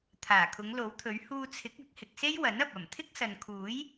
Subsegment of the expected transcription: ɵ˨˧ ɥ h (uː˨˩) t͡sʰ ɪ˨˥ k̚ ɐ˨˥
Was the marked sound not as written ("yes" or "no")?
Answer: yes